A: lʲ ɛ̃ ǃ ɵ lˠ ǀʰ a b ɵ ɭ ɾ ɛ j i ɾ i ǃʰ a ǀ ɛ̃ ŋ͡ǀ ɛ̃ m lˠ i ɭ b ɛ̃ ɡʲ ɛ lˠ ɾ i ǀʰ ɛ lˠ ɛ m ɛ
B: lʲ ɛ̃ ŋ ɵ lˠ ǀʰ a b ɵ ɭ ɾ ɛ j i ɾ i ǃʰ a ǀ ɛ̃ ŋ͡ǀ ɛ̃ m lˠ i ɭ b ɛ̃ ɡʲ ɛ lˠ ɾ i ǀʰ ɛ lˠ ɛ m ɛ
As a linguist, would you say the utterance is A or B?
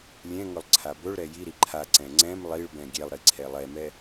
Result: B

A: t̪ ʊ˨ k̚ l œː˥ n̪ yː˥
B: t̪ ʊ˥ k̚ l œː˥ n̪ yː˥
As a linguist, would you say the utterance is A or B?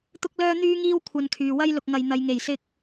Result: B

